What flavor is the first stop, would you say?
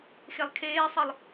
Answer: aspirated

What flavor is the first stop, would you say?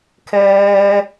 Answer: aspirated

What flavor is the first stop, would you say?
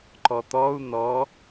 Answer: click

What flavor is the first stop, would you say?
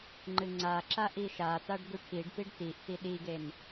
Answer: click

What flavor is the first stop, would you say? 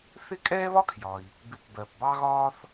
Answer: ejective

